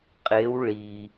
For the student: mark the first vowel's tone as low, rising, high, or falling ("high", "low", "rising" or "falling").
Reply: rising